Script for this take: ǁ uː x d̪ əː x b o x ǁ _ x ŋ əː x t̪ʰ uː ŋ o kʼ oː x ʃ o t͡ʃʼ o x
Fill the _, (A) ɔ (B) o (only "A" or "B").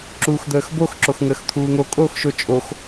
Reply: B